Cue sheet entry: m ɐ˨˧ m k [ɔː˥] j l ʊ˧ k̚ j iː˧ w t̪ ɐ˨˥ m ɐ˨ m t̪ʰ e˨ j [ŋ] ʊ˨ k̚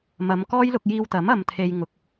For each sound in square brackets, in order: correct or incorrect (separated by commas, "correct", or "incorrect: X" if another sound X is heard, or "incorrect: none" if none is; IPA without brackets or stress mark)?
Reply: correct, correct